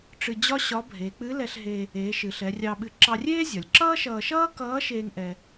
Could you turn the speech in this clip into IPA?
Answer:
ʈ͡ʂ ɨ˧ d͡ʑ ɒ˥ ɕ ɒ˧˥ bʱ e˩˧ k͡p ɨ˧˥ l ɛ˧ ɬ ɦ e˧ | eː˩˧ ʃ ɨ˩ ɬ ɛ˩˧ rʲ ɑ˧ ɓ ɨ˧ ǁ ɑ˧ rʲ eː˥ zʲ ɒ˩ lʲ ǁ ʌː˥ ʃ ʌː˧ ʃ ʌː˥ k ʌː˧˥ ʃ eː˥ ŋ ʔ ɛ˧

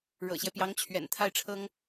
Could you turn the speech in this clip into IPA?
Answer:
ɻ ɤ̰˨˩ ɕ j ɛ˦ p j ɑ˧˥ ŋ t͡ɕʰ ɥ ɛ̰˨˩ n t̪ʰ a˥˩ ɪ̯ ʈ͡ʂʰ ɤ˥ ŋ

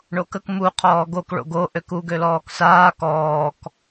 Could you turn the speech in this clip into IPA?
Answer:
ɳ o k ə k m u qʰ ɔː ɡ o k ɭ o̰ ɡ o ʔ ø k u ɡ ø l ɔː k s aː k ɔː k

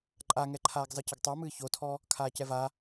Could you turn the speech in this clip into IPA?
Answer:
ǃʼ a ŋ ɛ ǃʰ aː ɡ zˤ ɨ c ə ɡ tˤ ə˞ m ɨː ç o tʰ ɔ | kʰ aː c ɛ v a

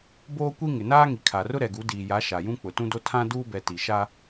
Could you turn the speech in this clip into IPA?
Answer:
b oː˦ kʷ i˦ ŋ ɪ˨ n aː˦ ŋ i˨ kʰ a˨ r ʊ˦ ɾ ɛ˨ ɡ u˨˦ d iː˨ j a˨˦ ʃ a˨ j ũ˦ k͡p ʊ˨ t ũ˦ d o˦ tʰ ã˦ d uː˦ b ɛ˨ t i˨ ʃ a˦

